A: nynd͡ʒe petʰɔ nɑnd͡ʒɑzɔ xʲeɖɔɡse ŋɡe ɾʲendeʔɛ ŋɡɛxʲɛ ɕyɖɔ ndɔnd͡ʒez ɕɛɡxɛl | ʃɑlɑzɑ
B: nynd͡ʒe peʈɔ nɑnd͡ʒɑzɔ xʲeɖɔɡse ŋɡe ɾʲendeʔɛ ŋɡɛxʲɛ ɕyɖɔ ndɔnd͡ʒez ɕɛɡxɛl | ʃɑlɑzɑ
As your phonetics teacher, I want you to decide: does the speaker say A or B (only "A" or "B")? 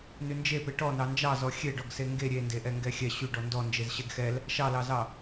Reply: B